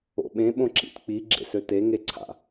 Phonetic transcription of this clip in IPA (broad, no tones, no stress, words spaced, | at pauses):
o̰ɓẽ ɓõǁḭt k͡pi ɡ͡ǁḛsøte ŋeǀʰa̰